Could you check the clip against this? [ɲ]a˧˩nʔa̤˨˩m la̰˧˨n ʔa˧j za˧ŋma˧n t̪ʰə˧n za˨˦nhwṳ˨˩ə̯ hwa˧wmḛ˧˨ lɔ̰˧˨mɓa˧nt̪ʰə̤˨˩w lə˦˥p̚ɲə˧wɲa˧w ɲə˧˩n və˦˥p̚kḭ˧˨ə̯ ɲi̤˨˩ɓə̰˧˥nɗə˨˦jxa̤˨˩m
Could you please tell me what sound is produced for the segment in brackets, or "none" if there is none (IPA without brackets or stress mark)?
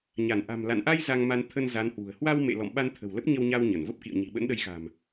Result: ɲ